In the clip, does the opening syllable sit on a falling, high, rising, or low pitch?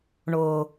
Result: low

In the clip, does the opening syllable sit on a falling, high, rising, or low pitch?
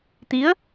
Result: rising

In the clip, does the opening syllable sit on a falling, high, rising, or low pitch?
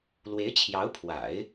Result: rising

